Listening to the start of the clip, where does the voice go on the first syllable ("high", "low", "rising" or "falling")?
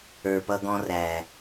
low